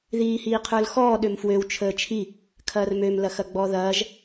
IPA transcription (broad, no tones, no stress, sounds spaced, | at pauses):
ð iː h iː qʰ ə˞ l x ɔː ɗ ø m f w ø w t͡ʃʰ əː t͡ʃʰ i | kʰ ɐː r m ø m l ɐ x ɐ ɡ͡b ɔ ð ɐː ʒ